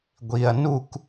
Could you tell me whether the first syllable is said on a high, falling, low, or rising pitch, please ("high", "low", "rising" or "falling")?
low